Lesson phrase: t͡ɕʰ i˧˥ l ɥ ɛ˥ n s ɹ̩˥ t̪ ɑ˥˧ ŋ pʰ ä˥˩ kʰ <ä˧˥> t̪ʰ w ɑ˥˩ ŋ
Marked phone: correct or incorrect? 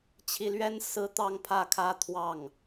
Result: incorrect